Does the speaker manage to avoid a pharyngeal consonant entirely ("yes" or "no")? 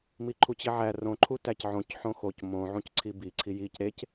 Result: no